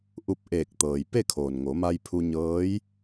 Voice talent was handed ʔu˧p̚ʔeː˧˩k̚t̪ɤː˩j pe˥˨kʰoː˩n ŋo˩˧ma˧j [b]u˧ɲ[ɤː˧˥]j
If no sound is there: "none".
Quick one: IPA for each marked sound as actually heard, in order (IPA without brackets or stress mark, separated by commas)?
pʰ, ɤː˧˥